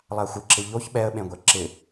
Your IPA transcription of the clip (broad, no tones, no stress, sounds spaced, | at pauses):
lˠ a xʷ ɪ ǁ ɪ ʎ o ç ɓ ɛ ə̯ ɓ ẽ ɡʷ ɛ ǁ ɪ